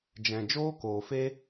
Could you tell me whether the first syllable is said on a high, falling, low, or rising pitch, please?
low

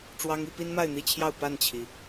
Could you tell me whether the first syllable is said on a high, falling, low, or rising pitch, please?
high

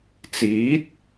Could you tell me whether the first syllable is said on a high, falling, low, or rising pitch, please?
rising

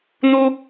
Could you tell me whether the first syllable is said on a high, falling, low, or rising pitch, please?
high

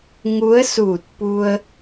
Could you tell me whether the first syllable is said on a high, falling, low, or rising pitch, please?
rising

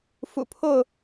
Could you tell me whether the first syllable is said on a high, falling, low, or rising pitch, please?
low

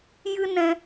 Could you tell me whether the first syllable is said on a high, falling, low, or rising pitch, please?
high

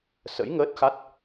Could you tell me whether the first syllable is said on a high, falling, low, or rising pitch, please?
rising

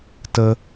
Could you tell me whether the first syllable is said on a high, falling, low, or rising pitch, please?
high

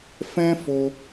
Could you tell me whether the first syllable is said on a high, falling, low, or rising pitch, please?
high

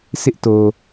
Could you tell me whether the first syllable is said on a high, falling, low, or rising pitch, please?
high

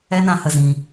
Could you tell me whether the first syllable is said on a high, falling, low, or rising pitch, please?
high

